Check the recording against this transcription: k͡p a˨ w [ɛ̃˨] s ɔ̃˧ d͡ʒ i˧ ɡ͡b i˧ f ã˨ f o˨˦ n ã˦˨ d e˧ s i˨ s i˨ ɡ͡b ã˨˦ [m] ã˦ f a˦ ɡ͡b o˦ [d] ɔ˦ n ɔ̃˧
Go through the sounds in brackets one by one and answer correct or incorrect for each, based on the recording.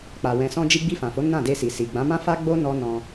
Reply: correct, correct, incorrect

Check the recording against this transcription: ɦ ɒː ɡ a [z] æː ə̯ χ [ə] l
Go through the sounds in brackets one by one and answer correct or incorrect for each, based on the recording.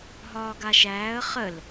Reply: incorrect, correct

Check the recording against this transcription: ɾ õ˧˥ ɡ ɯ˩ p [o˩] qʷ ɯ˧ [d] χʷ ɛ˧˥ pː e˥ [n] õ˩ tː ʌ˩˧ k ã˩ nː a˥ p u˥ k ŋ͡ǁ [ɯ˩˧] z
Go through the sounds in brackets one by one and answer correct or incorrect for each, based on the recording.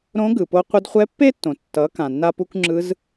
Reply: incorrect, correct, incorrect, incorrect

